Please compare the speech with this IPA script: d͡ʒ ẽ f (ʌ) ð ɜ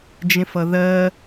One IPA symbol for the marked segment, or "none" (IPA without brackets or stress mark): ʌ